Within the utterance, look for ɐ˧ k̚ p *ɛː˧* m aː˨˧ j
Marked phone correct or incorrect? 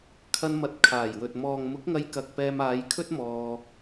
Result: correct